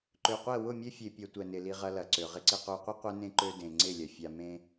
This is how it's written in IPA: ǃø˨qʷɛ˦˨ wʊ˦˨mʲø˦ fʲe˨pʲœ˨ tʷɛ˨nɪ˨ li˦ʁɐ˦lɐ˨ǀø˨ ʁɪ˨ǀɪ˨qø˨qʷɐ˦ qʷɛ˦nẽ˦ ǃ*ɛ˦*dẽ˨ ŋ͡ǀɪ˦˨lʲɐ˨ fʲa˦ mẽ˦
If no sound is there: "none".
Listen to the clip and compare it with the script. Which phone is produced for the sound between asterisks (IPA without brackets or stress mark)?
ø˦